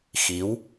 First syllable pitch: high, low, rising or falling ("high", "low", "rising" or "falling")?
rising